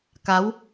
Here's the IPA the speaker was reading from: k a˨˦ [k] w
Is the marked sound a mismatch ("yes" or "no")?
yes